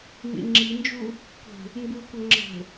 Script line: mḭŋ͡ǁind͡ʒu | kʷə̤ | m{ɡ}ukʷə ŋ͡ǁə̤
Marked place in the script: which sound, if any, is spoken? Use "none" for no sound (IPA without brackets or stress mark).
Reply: b